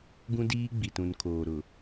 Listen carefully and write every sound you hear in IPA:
ɡ ũ˦ d iː˦ ɡ͡b i˨ t ũ˨ n kʰ oː˨ ɾ ʊ˨

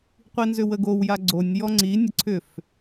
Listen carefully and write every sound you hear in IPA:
qʷ i n z ʏ w ə ɡ o w j a ɡ͡ǀ o nʲ j ɔ ŋ͡ǀ i nʲ ə ǀʰ ʏ f

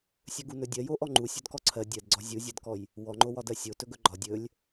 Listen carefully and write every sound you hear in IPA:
sʲ ɵ ɡ u n ɵ dʲ ɜ j o ʔ ɔ ŋ͡ǃ u sʲ ɵ d k ɔ ǀʰ ɜ dʲ ɜ d ɡ͡ǀ ɒ zʲ u zʲ ɜ d k ɔ j | w ɔ ŋ͡ǃ o w ɒ d ɜ sʲ o t ɵ ɡ ɵ ɡ͡ǃ ɒ dʲ ɵ lʲ

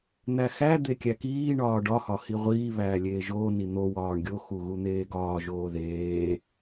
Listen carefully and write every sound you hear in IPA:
n̪ æ x æ d̪ e kʲ æ k iː ɳ ɒː ɖ ɒ h ɒ h i ʁʷ iː β æː lʲ eː ʒ oː n i n̪ o w ɒː ɳ ɡʲ o x u ɣ u n̪ eː ɡ ɒː ʒ oː ð eː

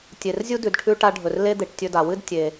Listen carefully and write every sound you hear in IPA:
tʲ e˩ r zʲ u˥ d ʉ˩ d ʈʰ ʉ˧ ʈ a˧ ɖʱ ɵ˩ r l e˥ d̪ e˩ ʈ tʲ ɵ˧ d a˩ w ɨ˥ d tʲ e˩

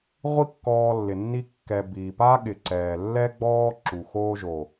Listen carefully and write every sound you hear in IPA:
ʁʷ i˦ kː ɔː˧ lː ɪ˨ nː i˧ kː ɛ˨ b iː˨ p aː˦ ɠ ɪ˨ ǀ ɛː˨ lː ɛː˦ ɡ͡b ɔː˦ ǁ u˨ x oː˧ ʒ o˨

